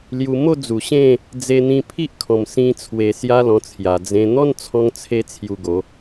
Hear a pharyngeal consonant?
no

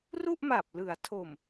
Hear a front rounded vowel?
no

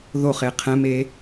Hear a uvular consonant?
yes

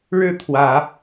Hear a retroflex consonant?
yes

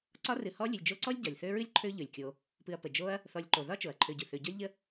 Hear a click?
yes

